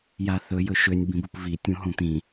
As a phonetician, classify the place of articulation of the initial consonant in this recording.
palatal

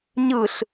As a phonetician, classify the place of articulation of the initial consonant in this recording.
palatal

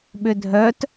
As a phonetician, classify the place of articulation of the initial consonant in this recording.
labial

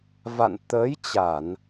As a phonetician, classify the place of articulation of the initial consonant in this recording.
labial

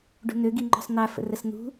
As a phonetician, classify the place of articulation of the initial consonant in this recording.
retroflex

